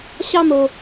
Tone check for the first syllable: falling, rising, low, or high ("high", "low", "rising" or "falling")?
high